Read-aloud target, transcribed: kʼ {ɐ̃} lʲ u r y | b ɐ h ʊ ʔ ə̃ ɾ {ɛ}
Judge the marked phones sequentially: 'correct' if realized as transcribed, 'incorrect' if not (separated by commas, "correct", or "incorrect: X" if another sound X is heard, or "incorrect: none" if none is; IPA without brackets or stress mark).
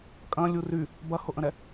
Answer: correct, correct